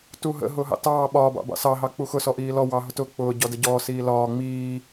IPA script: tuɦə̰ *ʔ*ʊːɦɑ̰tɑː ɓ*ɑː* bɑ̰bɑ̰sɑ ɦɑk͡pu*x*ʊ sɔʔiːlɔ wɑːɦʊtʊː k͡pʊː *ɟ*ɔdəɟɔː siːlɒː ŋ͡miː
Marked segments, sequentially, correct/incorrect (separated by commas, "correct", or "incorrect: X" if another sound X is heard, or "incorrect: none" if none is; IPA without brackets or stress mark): incorrect: ɦ, incorrect: ɒː, correct, correct